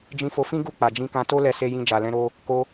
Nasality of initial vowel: nasal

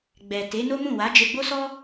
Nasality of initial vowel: oral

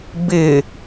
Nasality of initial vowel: oral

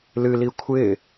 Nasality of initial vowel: oral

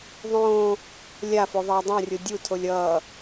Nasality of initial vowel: nasal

